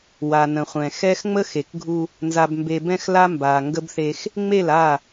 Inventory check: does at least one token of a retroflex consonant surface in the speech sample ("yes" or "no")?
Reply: no